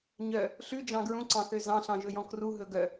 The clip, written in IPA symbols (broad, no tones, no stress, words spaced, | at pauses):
ɲœ | ɬʉd͡ʒɑ̃ ɡɹũǀɑ̃θø zɑ̃ɬɑ̃ʒɵjɔ̃ kruɦɵ ɡœ